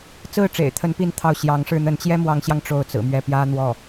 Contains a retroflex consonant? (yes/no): yes